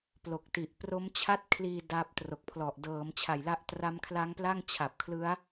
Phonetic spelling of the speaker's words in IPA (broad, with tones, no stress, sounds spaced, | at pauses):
p l o˨˩ k̚ t i˨˩ ʔ p r o˦˥ m t͡ɕʰ a˥˩ t̚ kʰ l iː˧ d a˦˥ p̚ t r o˨˩ k̚ pʰ l ɔ˨˩ ʔ d ɤː˩˦ m t͡ɕʰ a˨˩ j l a˦˥ ʔ t r a˦˥ m kʰ l a˦˥ ŋ p l a˥˩ ŋ t͡ɕʰ a˨˩ p̚ kʰ l ɯ˦˥ a̯